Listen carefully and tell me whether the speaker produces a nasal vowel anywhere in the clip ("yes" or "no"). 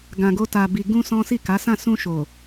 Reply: yes